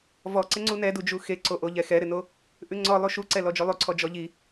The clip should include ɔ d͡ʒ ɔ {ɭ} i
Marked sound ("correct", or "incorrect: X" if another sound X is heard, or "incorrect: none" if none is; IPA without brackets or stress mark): incorrect: ʎ